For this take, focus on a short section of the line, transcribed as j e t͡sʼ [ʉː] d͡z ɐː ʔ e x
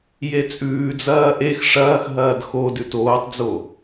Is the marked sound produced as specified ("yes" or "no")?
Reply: yes